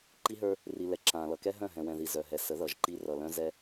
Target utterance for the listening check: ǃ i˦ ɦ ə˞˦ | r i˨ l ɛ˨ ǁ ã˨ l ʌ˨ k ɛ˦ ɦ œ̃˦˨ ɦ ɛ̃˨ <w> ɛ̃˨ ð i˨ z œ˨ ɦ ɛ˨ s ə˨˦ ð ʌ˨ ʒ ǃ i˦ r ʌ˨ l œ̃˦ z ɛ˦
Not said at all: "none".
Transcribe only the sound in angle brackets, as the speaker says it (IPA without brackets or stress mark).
w